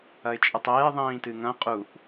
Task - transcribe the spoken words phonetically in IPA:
ɐɪ̯t͡ʃʼɨtˤeː ðˤĩːtɨŋɐ̃ qʼuʔ

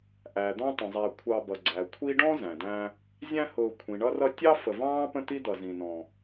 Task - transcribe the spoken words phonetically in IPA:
ʔæ˩d̪ɔ̃˦tˤə̃˩zˤæ˨ kʷʰɑ˨bʌ˩ ɡ͡ǀæ˩kʷʰi˥ ɖɔ̃˥ zæ̃˩dæ̃˦ | zʲæ̃˦hʊː˨ kʷʰĩ˩ɳʌ˦rʌ˦ tʲɑ˥fə˨vɑ̃ː˥pə̃˦ t̪i˥d̪ʌ˨zĩ˨nɔ̃˨

